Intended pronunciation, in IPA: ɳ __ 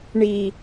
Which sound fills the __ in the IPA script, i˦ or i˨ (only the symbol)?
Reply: i˦